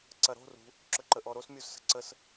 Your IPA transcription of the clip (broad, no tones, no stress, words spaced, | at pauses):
ǀɐɾo̤ rṳ | ǁɵǃəʔɔɾos mʲuzsə̤ǀəs